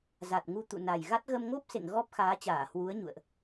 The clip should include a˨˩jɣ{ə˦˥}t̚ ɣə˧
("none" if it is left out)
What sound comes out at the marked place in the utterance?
a˦˥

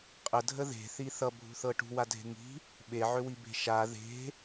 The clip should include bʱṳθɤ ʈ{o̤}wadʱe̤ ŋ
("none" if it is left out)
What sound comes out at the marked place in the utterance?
ṳ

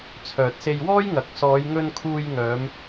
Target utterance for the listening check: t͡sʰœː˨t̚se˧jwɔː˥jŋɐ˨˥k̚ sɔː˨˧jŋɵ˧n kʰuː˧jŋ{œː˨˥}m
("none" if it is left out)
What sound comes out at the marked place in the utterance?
œː˨˧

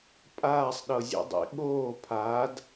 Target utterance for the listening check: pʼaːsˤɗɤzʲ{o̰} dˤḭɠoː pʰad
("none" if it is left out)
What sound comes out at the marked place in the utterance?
o̰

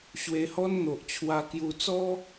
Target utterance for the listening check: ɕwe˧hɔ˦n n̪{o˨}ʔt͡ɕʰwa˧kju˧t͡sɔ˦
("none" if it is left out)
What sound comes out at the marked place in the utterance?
o˨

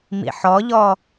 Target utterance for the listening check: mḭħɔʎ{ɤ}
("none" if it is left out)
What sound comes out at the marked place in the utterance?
ɔ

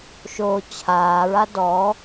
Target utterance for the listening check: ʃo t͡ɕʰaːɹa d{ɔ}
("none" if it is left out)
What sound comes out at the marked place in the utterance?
ɔ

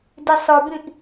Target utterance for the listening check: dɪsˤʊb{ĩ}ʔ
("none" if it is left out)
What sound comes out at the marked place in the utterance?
ĩ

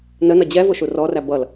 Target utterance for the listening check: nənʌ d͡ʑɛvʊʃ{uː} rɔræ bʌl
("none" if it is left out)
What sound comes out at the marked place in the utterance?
u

